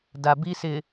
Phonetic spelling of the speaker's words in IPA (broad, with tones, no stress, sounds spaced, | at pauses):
d a˨ b i˦ s ɪ˨